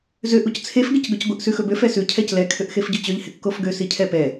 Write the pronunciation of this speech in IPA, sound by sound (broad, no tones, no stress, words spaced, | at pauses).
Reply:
zøʔ uct͡sʰef ɡɪcɡɵcɡʷɪʔ sʉxɵbøf ɛsʉ cʰɛclɛ kʰøʔxefɟɵt͡ɕøʎ hɪkːofɡø sicʰɛpɛ